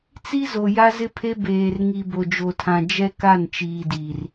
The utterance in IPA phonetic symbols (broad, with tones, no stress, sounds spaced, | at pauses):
t͡s i˦ z o˨ j a˦ z ɪ˦ pʰ e˦ b eː˨ r ŋ i˨ b o˨ d͡ʒ o˨ tʰ ã˨ d͡ʒ ɛ˦ k a˦˨ n t͡ʃ iː˨ d iː˨ r